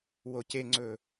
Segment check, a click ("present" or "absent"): present